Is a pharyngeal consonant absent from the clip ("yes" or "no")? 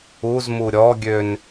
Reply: yes